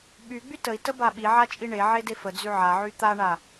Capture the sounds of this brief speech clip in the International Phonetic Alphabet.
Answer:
ɓ y ɡ͡b y t ə i̯ t ə b a ɓ i ʕ a t͡ʃʼ i ɳ e ʕ e d e f ə d͡z y ʕ a ʕ y t̪ a ɳ a

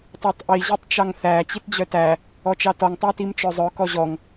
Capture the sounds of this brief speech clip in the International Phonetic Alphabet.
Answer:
tˤ œ tˤ ʔ i ʑ i tˤ t͡ʃ ɑ ŋ θ æ t͡ɕ i t d͡ʑ œ t æ | ɔ t͡ʃ ɑ t ɔ ŋ tˤ æ t i m t͡ʃ œ zˤ œ k ɔ ʑ ɔ ŋ

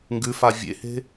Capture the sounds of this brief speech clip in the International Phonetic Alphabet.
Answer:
ŋ ɡ ʉ f a vʲ ḛ h e̤

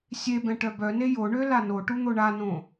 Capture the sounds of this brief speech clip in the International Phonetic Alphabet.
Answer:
sʲ e b ɛ̃ ʈ œ b œ n e j o ɳ ø l a n o ʈ u n̪ o ɳ a n õ

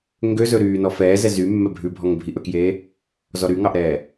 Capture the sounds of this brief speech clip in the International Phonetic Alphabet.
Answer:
ŋ ɡ ø z ɵ ɾ yː n ɔ f ɛː z ɛ z y mː ɛ bʱ ʉ bʱ ɔ ŋ bʱ i ʔ ɵ k j eː | z ɔ ɾ y ŋ ɑ ʔ ɾ ɛː

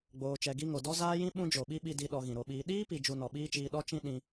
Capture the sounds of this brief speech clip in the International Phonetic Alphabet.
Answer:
ɡ͡b oː˧ t͡ʃ ɛ˧ ɡ i˦ ŋ o˨ d ɔ˦ z aː˦ j ĩ˦ ɓ ũ˦ d͡ʒ o˨ ɓ i˦ ɓ i˧ d i˧ ɗ ɔ˧ ɣ ĩ˨ ɾ o˧ ɓ iː˧ ɗ iː˦ p i˨ d͡ʒ u˧ n ɔ˨ ɓ iː˦ t͡ʃ iː˧ ɗ ɔ˦ t͡ʃ ĩ˦ ɗ ĩ˧

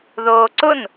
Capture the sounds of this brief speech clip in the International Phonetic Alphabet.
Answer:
ð oː ǀ ʊ n

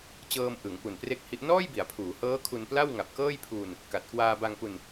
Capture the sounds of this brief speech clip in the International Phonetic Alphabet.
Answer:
t͡ɕ ɤː˧ m ʔ ɯ˩˦ ŋ p u˨˩ n p r e˥˩ k̚ h i˦˥ ʔ n ɔː˥˩ j b i˩˦ a̯ pʰ uː˩˦ h ɤː˦˥ kʰ u˧ n p l a˥˩ w ŋ a˨˩ p̚ k ɤː˥˩ j pʰ uː˧ n | k a˨˩ t̚ k w aː˧ b a˧ ŋ p u˧ n

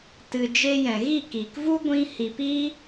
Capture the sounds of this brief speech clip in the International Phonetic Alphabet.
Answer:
t ɨ˨ d͡ʒ e˧ j ɛ̃˨ ɣ i˦˨ k iː˨ k v u˦ ɡʷ ĩ˧ h i˨ p iː˦

